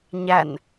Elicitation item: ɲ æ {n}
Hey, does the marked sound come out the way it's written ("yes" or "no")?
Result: yes